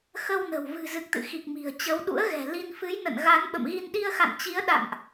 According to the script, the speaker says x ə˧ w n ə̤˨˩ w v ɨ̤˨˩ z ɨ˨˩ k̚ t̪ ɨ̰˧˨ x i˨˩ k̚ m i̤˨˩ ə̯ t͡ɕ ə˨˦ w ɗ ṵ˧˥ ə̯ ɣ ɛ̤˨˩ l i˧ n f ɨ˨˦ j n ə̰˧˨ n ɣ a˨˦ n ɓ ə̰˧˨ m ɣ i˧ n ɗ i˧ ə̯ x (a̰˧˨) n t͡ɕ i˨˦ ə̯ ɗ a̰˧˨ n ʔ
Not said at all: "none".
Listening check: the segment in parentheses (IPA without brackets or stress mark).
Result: a̰˧˨